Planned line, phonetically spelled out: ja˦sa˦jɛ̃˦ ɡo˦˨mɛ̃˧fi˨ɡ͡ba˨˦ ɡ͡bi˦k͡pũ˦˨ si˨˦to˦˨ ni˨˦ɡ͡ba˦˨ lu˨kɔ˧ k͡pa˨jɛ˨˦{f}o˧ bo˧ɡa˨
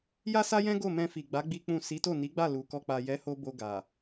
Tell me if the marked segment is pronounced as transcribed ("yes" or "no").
no